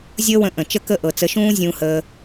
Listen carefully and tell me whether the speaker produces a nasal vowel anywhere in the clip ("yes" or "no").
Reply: yes